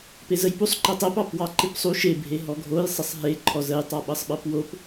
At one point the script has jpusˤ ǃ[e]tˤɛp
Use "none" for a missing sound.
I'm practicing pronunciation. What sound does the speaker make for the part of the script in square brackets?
ɛ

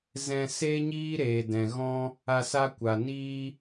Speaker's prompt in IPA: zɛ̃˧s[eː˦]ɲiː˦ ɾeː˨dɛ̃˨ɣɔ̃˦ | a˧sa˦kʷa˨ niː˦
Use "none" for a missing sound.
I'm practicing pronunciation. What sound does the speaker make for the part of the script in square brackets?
eː˦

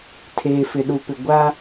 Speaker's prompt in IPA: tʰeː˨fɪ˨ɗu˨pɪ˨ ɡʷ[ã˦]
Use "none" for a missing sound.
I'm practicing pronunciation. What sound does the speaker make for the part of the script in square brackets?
a˦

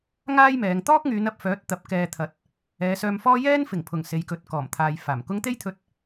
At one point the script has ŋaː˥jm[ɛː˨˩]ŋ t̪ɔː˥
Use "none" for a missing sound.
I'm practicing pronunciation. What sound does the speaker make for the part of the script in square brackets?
ɛː˨˧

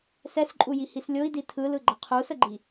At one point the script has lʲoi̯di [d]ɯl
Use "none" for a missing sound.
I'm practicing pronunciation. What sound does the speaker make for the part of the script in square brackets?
tʰ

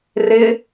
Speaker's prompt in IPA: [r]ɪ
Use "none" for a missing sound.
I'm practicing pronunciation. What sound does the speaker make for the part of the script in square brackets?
r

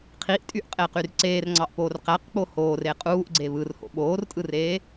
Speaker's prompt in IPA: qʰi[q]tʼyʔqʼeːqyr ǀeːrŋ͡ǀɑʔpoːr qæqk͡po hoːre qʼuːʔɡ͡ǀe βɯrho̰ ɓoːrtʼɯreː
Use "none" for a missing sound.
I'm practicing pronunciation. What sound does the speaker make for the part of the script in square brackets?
ʔ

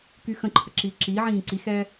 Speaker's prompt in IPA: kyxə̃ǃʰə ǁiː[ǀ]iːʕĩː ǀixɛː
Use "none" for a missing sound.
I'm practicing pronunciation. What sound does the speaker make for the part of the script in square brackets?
ǁ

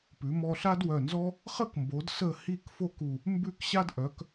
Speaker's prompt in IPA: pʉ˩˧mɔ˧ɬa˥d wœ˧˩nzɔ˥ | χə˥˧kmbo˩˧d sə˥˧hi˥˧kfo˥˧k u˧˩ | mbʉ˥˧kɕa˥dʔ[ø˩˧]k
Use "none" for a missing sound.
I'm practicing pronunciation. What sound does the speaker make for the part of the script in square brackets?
œ˩˧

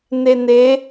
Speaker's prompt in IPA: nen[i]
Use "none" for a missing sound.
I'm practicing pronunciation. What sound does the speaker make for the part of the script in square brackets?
e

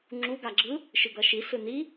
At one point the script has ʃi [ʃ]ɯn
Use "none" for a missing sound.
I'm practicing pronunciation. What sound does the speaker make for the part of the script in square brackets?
s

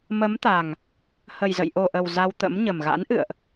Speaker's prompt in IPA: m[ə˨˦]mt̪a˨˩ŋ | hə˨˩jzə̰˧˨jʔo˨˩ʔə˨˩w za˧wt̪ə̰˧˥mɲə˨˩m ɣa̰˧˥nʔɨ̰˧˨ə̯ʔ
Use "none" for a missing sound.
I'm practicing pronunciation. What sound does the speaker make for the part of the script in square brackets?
ə˨˦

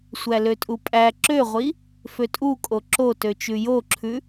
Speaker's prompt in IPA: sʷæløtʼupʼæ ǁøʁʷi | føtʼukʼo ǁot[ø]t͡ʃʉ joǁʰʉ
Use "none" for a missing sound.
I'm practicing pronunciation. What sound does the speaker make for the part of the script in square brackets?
ø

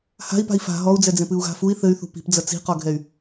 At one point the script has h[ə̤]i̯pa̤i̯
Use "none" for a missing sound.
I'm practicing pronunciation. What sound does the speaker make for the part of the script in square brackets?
a̤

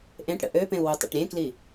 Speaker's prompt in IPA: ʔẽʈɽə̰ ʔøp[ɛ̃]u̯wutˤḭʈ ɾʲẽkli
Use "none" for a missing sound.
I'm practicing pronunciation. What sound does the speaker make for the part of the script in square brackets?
ẽ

